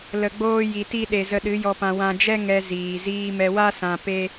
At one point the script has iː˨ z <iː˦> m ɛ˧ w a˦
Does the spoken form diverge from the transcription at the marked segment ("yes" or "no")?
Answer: yes